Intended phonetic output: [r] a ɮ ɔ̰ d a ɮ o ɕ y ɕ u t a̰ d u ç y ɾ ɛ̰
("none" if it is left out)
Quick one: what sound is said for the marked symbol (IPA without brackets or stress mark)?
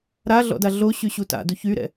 ɾ